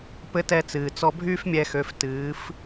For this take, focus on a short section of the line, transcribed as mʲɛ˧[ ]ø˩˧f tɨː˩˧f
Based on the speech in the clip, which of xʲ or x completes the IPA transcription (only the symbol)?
x